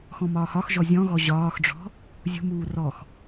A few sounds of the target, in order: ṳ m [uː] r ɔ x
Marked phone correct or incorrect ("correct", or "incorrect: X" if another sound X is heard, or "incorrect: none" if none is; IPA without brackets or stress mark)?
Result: correct